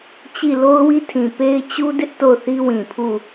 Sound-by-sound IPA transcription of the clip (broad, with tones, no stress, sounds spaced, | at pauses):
t͡ɕ i˦˨ l o˦ ʊ̯ w i˦ tʰ ĩ˨ p e˦ ɪ̯ t͡ɕ u˦ d ɪ˦ ʔ t o˦˨ ʊ̯ θ i˦ w ĩ˨ pʰ u˦˨